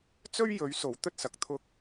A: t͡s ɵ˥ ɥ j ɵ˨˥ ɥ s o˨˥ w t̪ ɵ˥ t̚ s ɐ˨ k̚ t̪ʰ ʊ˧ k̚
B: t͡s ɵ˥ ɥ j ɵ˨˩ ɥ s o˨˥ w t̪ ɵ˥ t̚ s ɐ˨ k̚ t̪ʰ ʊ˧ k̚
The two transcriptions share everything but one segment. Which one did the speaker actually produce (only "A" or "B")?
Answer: A